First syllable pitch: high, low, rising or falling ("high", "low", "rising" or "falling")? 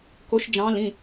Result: rising